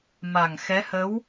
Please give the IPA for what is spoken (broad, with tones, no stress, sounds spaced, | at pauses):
m a˨˩ ŋ x ɛ˧˥ h ə˧˥ w